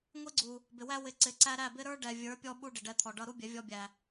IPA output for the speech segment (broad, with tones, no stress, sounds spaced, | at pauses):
ŋʷ i˦ ɡ͡ǀ u˨ | b ɪ˨ w æ˦ w ɪ˧ ǀ ɪ˨˦ ǀ æ˦ ɾ æ˦˨ b ɪ˦ ɾ ə˞˦ ɖ ɛ˨ vʲ ə˞˨˦ pʲ ɔ˦ ɓ u˦ ɖ ɪ˨ ɖ ɛ˧ t̪ʰ ɔ˨ ɖ ʌ˧ ɾ u˦ bʲ ɛ˨˦ vʲ ɔ˧ bʲ æ˨